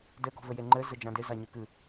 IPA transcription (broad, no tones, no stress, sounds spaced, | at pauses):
d ɘ ɡ ɔ̤ v ɘ j e ŋ͡ǃ ɘ z ɘ d͡ʒ ã d ɪ z a ɲ ɨ k ɨ